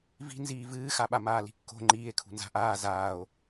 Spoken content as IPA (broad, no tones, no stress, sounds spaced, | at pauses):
v i̤ n z iː v ɨː x a ɓ a m aː l i̤ kː o̤ ŋ͡ǃ iː e̯ kʰ ṳ n z a̤ ʔ aː z aː o̯